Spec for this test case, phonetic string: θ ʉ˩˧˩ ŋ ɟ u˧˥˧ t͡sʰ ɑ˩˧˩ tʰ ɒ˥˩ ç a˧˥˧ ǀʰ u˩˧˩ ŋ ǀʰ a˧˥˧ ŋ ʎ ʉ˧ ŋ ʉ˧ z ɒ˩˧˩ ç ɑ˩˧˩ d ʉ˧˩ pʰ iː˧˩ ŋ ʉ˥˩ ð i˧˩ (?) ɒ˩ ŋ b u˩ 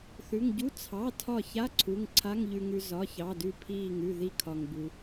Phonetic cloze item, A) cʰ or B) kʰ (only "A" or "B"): B